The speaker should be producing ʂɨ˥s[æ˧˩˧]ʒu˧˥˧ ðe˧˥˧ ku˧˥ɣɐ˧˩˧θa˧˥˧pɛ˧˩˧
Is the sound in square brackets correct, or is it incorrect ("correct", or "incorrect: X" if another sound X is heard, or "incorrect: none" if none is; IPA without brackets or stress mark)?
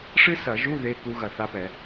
incorrect: ɐ˧˩˧